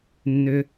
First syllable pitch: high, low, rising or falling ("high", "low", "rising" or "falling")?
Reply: low